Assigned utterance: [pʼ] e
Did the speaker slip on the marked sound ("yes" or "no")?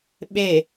yes